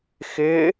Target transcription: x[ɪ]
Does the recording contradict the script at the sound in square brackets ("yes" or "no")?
no